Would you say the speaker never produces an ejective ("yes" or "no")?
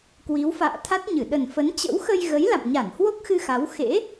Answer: yes